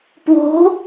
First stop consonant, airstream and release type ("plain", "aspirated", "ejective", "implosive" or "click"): plain